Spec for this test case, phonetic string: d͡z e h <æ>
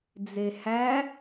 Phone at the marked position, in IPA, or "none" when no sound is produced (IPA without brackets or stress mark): æ